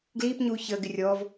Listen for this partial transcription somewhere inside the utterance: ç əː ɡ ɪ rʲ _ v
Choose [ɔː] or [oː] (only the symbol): ɔː